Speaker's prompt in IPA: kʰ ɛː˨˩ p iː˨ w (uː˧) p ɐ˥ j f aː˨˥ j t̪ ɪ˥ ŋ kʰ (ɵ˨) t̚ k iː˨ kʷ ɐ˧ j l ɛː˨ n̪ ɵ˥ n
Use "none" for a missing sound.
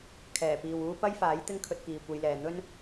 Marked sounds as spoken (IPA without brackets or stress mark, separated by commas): uː˥, ɵ˧